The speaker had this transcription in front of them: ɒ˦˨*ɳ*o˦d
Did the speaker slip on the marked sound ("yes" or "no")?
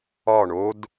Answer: no